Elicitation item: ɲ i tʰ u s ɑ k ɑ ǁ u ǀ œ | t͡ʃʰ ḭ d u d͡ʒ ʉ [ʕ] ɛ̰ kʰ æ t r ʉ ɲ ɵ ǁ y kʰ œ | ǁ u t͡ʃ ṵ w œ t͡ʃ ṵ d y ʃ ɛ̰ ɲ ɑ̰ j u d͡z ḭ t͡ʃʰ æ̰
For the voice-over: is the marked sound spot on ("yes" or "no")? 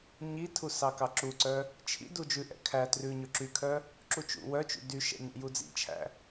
no